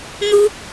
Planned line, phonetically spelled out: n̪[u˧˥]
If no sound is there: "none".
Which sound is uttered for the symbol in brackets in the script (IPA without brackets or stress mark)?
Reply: u˥